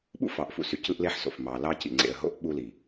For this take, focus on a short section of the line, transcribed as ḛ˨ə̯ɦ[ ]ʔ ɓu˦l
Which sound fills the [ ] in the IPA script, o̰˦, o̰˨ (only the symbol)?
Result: o̰˦